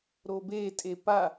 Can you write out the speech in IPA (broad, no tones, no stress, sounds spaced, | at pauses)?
ɾ o b e tʼ e p a